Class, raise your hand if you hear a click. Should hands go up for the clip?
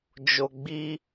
no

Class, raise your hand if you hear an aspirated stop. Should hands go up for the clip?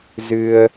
no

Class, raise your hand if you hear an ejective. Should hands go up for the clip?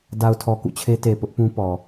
no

